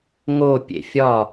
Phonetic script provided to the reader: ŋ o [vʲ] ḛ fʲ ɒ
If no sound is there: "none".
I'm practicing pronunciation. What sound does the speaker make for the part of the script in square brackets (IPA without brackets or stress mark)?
pʲ